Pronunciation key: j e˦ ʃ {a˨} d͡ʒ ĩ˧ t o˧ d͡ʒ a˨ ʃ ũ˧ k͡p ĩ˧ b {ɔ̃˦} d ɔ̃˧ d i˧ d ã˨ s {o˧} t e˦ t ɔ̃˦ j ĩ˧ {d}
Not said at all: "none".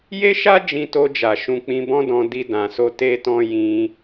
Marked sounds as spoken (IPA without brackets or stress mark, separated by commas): a˦, ɔ̃˦, o˧, none